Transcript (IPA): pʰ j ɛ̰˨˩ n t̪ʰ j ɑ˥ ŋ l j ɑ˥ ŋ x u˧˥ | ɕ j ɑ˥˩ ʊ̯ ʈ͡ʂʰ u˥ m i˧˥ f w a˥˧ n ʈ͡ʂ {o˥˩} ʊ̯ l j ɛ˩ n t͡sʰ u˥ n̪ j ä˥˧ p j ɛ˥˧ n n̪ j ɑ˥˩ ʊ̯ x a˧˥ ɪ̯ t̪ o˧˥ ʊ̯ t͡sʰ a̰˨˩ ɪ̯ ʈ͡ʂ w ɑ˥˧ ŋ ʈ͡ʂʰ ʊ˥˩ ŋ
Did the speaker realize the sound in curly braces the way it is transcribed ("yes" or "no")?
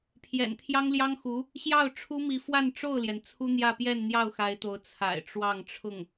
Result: yes